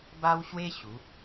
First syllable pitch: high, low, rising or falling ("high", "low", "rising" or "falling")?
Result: high